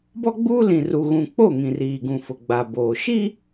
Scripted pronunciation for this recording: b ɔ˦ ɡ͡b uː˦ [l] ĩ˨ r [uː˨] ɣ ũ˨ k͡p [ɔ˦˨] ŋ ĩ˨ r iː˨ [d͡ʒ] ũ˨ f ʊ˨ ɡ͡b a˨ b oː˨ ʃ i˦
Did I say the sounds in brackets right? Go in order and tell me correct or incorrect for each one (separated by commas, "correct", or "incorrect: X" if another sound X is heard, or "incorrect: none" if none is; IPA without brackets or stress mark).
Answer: correct, incorrect: u˨, incorrect: o˦˨, incorrect: ɡ